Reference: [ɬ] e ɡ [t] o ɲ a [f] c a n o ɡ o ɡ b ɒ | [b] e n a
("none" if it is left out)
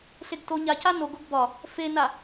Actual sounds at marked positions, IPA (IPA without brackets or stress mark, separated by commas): ɬ, t, none, f